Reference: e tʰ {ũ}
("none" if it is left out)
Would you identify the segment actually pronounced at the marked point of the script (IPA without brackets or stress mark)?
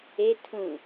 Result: ũ